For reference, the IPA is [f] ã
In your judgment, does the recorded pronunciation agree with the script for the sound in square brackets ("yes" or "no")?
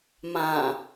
no